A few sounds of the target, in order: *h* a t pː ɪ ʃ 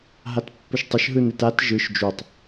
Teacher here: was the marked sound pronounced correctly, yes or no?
no